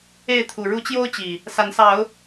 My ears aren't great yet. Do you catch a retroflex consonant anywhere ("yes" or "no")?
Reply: yes